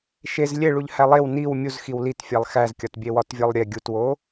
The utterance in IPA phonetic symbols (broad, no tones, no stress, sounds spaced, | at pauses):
ʃ e z lʲ e ɭ u ʎ h æ lˠ e w n i w mʲ u z x i w l i t fʲ æ lˠ x æ z kʲ ɒ t bʲ e w ɒ t vʲ ɒ lˠ ɾʲ e ɡʲ u t w o